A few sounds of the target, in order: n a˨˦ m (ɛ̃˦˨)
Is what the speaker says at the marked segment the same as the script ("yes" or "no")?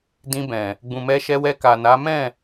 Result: yes